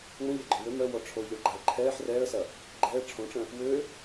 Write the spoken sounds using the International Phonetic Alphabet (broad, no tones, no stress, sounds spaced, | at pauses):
ŋ͡m ə̃ ʎ a ɡ͡ǃ œ̃ w ø m œ w ɔ ʈ͡ʂʰ o ʎ ɔ ɭ ɡ͡ǃ a ə̯ ǃʰ ɛː ħ r ɛː ə̯ s ɐ | ɡ͡ǃ ɛː ʈ͡ʂʰ õ ʈ͡ʂ ə̃ | w ø